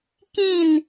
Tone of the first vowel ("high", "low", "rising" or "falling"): falling